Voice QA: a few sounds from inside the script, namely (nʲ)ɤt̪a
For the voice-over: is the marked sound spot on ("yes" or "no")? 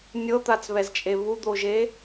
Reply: yes